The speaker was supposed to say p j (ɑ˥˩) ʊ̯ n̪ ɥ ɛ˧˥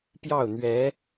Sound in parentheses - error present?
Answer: no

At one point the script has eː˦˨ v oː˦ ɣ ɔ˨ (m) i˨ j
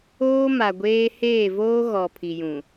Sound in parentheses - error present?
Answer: yes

